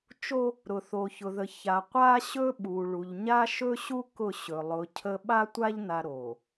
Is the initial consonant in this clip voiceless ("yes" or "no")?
yes